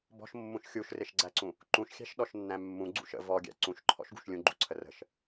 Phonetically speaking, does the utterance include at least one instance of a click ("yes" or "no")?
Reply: yes